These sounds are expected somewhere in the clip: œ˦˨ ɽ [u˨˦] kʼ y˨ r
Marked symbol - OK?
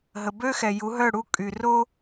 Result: no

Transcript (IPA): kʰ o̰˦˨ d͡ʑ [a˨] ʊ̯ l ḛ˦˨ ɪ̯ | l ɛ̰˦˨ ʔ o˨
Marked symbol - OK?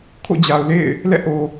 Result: yes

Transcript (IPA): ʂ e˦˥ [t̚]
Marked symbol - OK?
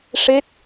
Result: yes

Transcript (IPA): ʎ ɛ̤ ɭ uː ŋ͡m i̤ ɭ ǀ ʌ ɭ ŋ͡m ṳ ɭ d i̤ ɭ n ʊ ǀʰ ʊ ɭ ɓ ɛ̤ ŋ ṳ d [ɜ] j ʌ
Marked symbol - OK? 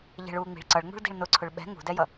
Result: no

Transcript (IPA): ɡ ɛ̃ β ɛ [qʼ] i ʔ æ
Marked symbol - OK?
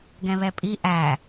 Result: no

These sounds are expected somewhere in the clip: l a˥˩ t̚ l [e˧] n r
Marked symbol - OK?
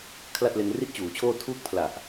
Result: yes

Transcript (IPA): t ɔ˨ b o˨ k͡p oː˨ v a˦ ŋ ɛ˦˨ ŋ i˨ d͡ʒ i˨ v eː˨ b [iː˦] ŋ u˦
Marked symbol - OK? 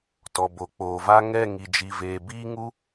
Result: yes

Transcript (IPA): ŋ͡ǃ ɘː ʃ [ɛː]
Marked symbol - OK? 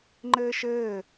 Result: no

